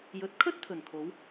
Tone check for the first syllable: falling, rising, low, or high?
rising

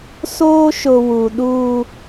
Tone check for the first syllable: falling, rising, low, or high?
high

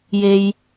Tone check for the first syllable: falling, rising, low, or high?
low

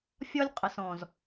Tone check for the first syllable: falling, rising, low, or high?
high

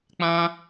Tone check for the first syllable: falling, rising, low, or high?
high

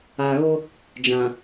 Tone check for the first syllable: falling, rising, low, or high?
low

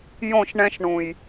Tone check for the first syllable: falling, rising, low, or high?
falling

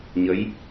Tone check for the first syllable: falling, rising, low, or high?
rising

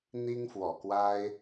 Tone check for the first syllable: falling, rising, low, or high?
high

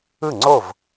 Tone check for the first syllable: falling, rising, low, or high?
falling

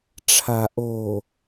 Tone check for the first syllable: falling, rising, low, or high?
low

